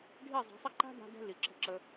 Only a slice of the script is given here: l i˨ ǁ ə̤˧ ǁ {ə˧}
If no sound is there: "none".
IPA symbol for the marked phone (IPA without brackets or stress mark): ə˧